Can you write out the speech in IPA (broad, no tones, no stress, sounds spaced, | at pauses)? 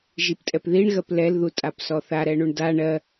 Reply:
ʒ i p tʼ ɛ p ð i ɳ ɣ ɜ p l ɛ l ð u tʼ a p s ɔ θ a ɾ ɛ ɳ u ɳ d a ɳ ɜ